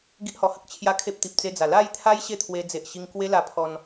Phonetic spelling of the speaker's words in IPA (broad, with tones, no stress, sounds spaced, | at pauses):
ɡ i˦ ʔ h ɔ˧ h ə˦ k̚ t͡ɕʰ j a˧ kʰ e˦ p̚ t̪ i˨ p̚ t͡s e˧ d͡z a˨˩ l a˥˧ j t̪ʰ a˦ j ɕ e˥˧ t̪ʰ w e˧ d͡z e˨ ʔ ɕ i˧ ŋ k w e˦ l a˧ pʰ ɔ˧ n